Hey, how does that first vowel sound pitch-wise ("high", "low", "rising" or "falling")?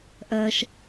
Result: high